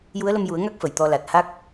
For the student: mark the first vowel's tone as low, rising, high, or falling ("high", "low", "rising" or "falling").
rising